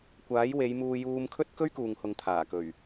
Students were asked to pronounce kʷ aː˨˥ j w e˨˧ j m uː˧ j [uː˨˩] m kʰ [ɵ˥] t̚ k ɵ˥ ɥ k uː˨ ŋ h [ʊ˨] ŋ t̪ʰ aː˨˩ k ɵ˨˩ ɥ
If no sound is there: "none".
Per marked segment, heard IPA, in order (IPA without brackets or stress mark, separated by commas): uː˧, ɵ˥, ʊ˨